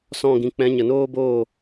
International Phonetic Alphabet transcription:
sɔ̃˦˨ɡĩ˧ k͡pɛ̃˨˦ɲə˨noː˦boː˦˨

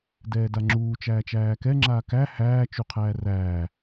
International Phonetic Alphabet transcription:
dɛːdaŋ͡ǁuː t͡ʃæːt͡ʃæːkɛ ŋ͡ǁaːkæ hæː t͡ʃuqʰæːræː

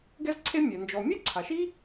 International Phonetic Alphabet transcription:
ɡɛ˥zǀʰe˥mʲɛ˩ nd͡ʒɔ˩mʲe˥ǀʰa˩ʃi˥

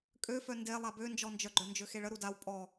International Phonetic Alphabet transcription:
kʼøfœ nde lˠabønd͡ʒɔnd͡ʒœ ɡ͡ǃœnd͡ʒøxeɭə ɾudaw pʼɔ

